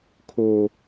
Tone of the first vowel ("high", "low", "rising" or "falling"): low